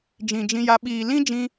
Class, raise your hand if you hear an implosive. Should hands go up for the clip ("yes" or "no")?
yes